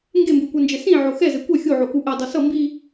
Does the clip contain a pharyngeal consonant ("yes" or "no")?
yes